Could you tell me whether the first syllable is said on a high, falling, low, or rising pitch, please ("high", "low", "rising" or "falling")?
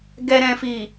low